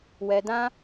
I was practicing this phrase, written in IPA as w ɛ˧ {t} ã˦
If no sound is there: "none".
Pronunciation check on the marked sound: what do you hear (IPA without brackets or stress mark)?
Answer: d